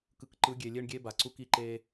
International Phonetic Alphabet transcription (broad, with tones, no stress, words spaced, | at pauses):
kɯ˨kǃɯ˨˦ɡʲe˨ lʲe˦ɳɡʲe˦ba˨ǀu˦k i˦ ǃe˦